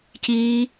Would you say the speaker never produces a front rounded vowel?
yes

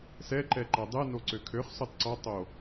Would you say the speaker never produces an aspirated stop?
no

